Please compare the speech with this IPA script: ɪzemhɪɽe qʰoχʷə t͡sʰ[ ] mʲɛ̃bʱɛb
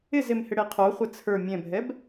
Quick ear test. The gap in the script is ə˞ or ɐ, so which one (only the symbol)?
ə˞